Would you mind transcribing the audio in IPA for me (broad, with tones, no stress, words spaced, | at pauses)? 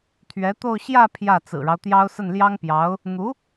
t̪ʰɥɛ˧˥t̪o˥˧ʊ̯ ɕjä˥˧ pʰjä˥˩ t͡sɹ̩˨˩ɻɑ˦ʊ̯t̪jɑ˥ʊ̯ sə˥˩nljɑ˥ŋpjɑ˧˥ʊ̯ | n̪u˧˥